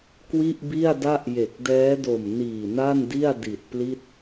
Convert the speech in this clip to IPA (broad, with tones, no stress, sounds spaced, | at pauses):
k w i˥˩ ʔ b i˥˩ a̯ d a˥˩ ʔ j e˨˩ k̚ d ɛː˦˥ d o˨˩ m n iː˨˩ n a˥˩ n d i˥˩ a̯ d i˨˩ t̚ p l i˥˩ t̚